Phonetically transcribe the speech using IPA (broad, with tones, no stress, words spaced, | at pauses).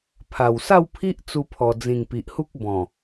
pʰa˨˩w sa˥˧wpʰi˦ʔ t͡su˧pʰɔ˨˩ d͡zĩ˨˩ŋ pi˨ʔhu˦k̚ bɔ̃˨˩